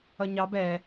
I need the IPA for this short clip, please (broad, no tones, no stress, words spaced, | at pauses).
ʌɲɑb ɛ